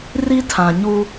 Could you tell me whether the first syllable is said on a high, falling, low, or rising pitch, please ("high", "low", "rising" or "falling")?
high